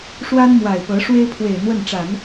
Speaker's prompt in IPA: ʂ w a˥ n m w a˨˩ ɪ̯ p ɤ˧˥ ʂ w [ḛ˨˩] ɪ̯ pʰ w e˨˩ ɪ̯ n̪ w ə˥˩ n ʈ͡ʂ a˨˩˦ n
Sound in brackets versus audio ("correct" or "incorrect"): incorrect